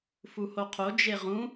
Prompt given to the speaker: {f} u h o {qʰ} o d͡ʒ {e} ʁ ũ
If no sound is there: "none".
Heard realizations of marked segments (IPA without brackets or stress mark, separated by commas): f, qʰ, e